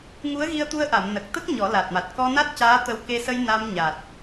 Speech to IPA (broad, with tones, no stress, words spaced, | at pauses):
ŋu˧˥ə̯ɣi˧ə̯t̪u˧ə̯ʔa˨˩˨m nə˨˩k̚ t̪ə˦˥k̚ ɲɔ˨˩˦la˨˩t̚ma˨˩t̚ kɔ˧na˦˥t̚ caː˧˥t̪ə˧w ke˧sə˧j na˧m ɲa˨˩t̚